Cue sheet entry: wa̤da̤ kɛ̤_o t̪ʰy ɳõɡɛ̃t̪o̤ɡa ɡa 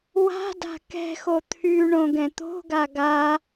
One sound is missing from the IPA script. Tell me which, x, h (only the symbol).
x